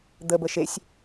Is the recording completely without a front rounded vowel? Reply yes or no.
yes